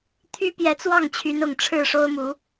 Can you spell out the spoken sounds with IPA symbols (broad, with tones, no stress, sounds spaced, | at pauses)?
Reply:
t̪ʰ y˦ p j ɛ˨˦ t͡s w ɑ˥˨ ŋ t͡ɕʰ y˨˦ n ʊ˨˩ ŋ ʈ͡ʂʰ ɻ̩˥˨ ʂ o˦ ʊ̯ m u˨˦